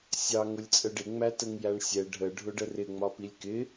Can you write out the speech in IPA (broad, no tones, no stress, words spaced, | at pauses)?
sʲɑ ŋʊlʲt͡sʼəɖɪ ŋ͡mætəŋjæɳsʲɛ ɖʱə ɖʱʊɖərɪ ŋ͡mɒpilʲkɪ